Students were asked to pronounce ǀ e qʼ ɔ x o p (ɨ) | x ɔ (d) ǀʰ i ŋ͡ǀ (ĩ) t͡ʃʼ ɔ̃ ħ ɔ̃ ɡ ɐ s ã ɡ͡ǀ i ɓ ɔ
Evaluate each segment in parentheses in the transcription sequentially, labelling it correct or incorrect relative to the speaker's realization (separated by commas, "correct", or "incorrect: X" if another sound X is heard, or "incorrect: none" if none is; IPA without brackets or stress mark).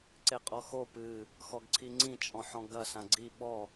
correct, incorrect: ɡ, correct